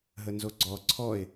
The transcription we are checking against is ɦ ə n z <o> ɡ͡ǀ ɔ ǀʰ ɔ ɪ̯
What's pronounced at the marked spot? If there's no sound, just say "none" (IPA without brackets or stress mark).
o